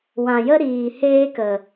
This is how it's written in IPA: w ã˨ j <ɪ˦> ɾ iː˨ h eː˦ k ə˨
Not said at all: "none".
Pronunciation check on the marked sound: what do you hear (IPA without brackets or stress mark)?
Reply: ə˦